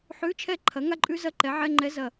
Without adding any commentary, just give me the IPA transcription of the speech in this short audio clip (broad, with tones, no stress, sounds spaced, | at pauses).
ħ ʉ˧˥˧ t͡ʃʰ ɛ˥˩ ǃʰ ɐ˩˥ ŋ a˥ ǃʼ ʉ˥ z ɐ˥˩ ǃ ɛ˩˥ ʕ ɛ˧˥˧ ŋ͡ǃ ɛ˧˥ z ɐ˨˩